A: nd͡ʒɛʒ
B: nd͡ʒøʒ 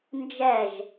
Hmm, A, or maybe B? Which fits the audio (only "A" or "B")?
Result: A